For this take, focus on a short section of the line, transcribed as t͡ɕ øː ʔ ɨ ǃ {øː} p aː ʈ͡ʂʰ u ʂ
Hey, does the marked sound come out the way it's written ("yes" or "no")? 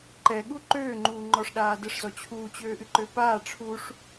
no